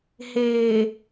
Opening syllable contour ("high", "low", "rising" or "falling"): low